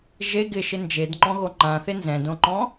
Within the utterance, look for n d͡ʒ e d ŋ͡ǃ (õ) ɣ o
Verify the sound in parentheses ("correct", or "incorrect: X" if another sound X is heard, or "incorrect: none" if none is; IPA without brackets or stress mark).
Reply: incorrect: ɔ̃